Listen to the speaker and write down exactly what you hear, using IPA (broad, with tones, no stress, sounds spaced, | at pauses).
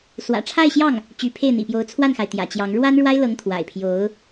s w ä̰˨˩ ʈ͡ʂʰ a˥˧ ɪ̯ ɕ j ɑ˥˩ ŋ | t͡ɕ y˧˥ pʰ e˥˩ ɪ̯ n̪ ḭ˨˩ p j o˧˥ ʊ̯ t͡sʰ w a˥˩ n x a˩ ɪ̯ t̪ j ä̰˨˩ t͡ɕ j ɑ˧˥ ŋ ɻ w a˥ n ɻ w a˥ ɪ̯ l ɤ˧˥ ŋ t̪ʰ w a̰˨˩ ɪ̯ pʰ j o˧˥ ʊ̯